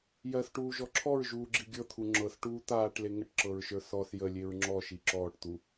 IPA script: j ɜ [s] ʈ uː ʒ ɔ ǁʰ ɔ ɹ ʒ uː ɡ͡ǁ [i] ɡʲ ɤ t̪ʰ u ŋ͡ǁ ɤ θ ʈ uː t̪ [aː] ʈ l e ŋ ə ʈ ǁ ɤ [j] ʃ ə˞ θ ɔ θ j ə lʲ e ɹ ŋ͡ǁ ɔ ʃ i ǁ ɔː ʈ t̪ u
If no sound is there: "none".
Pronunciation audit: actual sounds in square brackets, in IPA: θ, i, aː, ɹ

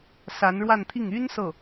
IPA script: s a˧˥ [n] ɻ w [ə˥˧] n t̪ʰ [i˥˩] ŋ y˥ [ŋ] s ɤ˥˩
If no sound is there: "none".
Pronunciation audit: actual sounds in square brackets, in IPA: n, a˥˧, i˥˩, n

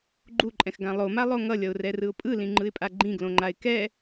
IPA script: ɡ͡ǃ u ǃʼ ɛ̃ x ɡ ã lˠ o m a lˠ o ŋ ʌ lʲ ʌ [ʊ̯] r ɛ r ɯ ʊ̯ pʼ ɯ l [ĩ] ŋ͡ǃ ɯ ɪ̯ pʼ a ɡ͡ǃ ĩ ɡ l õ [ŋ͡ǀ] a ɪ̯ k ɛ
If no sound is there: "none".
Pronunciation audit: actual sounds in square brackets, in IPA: ʊ̯, ĩ, ŋ͡ǃ

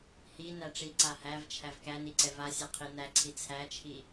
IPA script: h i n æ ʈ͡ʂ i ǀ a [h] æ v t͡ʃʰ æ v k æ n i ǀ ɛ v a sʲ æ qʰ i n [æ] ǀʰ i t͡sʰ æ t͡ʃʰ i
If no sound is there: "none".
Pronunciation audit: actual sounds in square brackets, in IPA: h, æ

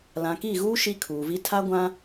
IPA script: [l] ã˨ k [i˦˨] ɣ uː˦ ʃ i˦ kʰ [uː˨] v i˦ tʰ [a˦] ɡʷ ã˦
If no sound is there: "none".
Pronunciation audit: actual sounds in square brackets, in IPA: l, i˦˨, uː˨, a˦

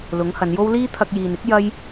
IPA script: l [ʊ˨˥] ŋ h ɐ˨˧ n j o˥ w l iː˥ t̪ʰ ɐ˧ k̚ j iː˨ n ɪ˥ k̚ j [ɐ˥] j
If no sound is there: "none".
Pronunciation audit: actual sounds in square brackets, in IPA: ʊ˨˥, ɐ˥

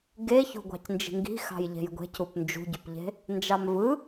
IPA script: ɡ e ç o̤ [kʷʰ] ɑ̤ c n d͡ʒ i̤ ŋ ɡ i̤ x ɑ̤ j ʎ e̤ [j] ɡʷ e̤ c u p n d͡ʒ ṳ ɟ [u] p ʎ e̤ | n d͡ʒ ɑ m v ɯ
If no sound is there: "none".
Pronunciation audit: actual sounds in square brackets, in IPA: ɡʷ, j, y

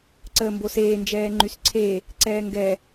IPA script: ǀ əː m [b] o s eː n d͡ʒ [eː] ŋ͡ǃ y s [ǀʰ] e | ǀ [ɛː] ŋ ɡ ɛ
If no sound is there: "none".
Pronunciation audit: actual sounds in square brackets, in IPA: b, ɛː, ǀʰ, ɛː

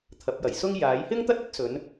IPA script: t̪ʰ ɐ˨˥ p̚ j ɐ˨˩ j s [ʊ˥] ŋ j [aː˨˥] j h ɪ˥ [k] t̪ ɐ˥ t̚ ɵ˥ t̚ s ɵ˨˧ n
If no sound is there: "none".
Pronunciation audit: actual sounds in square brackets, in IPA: ʊ˥, aː˨˥, ŋ

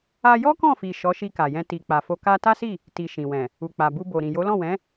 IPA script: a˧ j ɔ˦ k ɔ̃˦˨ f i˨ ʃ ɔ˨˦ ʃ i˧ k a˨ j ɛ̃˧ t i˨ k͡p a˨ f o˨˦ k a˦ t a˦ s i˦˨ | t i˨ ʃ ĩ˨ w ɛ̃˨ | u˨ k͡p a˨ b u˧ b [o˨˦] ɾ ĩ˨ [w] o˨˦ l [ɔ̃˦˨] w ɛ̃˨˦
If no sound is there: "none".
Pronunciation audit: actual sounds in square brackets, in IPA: o˨, j, ɔ̃˦˨

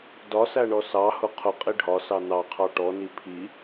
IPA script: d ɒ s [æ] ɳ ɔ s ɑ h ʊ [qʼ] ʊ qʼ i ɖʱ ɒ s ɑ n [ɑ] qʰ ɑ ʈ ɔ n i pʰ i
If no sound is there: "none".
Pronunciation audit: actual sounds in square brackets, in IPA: æ, qʰ, ɑ

